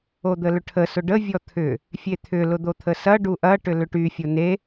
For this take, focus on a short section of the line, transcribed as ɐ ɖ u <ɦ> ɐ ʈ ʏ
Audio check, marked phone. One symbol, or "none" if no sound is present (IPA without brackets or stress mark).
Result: ʔ